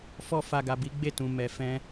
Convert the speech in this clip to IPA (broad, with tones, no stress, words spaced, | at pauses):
fɔ˧fa˨ ɡa˨bi˨˦ɡ͡be˦˨tũ˨ mɛ˨fɛ̃˧